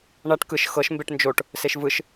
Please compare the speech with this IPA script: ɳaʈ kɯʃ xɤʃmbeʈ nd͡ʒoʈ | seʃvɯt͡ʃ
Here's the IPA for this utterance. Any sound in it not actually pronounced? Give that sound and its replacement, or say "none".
t͡ʃ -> ʃ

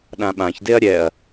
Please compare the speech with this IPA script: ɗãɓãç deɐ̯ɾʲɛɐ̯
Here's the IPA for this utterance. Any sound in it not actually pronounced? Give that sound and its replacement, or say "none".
none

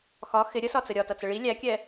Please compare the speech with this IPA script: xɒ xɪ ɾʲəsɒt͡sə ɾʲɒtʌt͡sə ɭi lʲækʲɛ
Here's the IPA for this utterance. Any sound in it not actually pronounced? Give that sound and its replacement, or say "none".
none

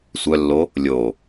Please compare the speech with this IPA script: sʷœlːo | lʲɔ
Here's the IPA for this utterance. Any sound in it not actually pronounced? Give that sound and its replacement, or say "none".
ɔ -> o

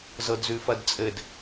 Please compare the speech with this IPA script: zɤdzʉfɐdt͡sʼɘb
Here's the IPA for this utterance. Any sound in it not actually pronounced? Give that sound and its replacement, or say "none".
b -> d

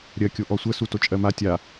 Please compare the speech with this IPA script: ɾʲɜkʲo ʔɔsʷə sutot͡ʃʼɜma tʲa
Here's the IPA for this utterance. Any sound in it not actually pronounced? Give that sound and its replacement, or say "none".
none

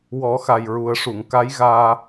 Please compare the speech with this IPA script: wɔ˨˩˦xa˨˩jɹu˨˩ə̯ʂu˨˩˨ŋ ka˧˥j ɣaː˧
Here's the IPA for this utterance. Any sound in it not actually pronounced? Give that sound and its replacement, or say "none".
none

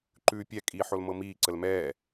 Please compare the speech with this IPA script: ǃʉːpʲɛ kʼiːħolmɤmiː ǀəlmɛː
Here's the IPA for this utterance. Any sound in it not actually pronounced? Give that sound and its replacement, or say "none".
none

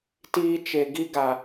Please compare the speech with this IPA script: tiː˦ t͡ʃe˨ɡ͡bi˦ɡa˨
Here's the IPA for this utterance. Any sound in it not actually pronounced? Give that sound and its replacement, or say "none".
ɡ͡b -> ɡ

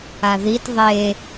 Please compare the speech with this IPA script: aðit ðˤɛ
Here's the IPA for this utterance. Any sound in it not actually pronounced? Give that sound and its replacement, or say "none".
ɛ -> e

